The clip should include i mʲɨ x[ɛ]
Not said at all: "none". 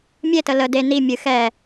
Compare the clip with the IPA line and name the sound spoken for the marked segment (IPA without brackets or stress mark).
ɛ